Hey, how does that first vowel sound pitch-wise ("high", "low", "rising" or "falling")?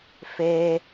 high